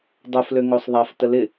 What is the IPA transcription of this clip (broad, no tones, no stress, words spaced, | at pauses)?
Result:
dˤoflø ŋosˤðˤaf təlɪ